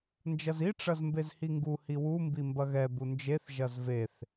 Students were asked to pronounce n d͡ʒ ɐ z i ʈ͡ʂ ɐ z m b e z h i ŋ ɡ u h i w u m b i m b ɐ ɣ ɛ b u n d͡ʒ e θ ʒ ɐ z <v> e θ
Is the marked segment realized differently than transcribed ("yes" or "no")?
no